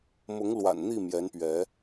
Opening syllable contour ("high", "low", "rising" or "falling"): rising